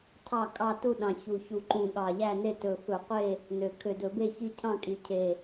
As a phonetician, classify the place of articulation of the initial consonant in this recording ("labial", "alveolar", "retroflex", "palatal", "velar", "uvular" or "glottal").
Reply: alveolar